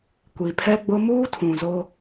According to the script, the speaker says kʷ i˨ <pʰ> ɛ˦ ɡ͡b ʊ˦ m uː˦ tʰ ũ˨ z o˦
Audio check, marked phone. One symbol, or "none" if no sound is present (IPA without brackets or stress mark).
pʰ